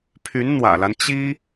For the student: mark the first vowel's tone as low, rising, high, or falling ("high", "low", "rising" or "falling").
rising